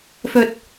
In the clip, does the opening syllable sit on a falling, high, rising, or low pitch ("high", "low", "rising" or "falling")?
low